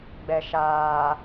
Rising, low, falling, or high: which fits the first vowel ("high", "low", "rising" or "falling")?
low